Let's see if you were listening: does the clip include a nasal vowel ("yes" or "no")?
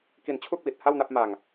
no